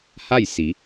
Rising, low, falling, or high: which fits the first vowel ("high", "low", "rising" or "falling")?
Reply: falling